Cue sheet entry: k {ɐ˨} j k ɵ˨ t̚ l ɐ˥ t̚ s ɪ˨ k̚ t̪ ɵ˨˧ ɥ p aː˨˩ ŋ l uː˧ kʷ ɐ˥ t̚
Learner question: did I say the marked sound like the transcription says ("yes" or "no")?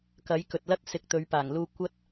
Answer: no